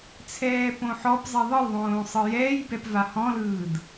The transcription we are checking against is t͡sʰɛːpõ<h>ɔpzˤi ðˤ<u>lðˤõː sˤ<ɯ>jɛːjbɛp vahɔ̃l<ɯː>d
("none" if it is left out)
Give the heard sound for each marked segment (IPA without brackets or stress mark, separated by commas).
ħ, ɯ, ɯ, ɯː